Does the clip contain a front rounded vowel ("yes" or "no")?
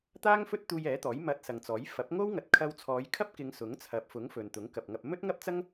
no